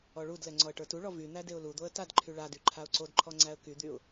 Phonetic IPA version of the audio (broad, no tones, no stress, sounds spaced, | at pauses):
ɔ ɭ u d l ɛ ŋ͡ǀ ɔ ə̯ ʈ ə˞ t u ɭ ɔ v y n̪ æ d e ʊ̯ l u d̪ o ə̯ t a d ǃʰ y ɭ a d y ǃʰ a ʊ̯ ǀ o d ǃʰ ɔ ŋ͡ǀ æ ə̯ k y d̪ y ʊ̯